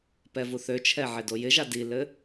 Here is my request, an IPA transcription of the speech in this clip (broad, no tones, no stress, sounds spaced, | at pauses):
p ɛ v u θ ø t͡ʃʰ ɛ ʕ ɪ d o j ɪ ʒ a d i l ɘ